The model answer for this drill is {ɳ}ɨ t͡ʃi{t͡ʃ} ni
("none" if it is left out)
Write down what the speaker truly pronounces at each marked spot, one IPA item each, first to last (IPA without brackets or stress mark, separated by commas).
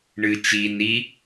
ɳ, none